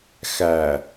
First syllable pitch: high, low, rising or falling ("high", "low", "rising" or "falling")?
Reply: low